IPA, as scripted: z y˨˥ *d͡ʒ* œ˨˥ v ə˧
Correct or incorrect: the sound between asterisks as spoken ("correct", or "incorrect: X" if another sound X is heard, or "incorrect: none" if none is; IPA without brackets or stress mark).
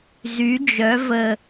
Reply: correct